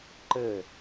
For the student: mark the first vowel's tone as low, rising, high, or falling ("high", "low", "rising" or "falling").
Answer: falling